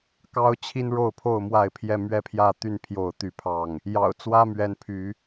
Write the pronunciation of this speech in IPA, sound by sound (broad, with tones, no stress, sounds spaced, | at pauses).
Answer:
k ɑ˦ ʊ̯ t͡ɕʰ i˦ n ɻ o˥˨ ʊ̯ pʰ o˥˨ ʊ̯ m w a˥˨ ɪ̯ pʰ j ɛ˥˨ m ɥ ɛ˥˨ pʰ j ä˥˨ t̪ y˥˨ n pʰ j o˥˨ ʊ̯ t̪ y˥˨ pʰ ɑ˥˨ ŋ | j ɑ̰˨˩ ʊ̯ t͡s w ä˦ m ɥ ɛ˨˦ n pʰ y˨˦